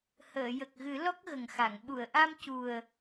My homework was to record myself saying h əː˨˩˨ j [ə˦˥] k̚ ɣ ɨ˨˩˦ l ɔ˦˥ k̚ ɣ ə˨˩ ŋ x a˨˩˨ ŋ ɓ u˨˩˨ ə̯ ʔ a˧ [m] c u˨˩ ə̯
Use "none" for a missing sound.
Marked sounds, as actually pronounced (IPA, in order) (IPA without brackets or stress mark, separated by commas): ə˨˩, m